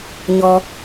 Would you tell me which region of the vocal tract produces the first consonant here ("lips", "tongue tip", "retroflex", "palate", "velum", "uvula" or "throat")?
palate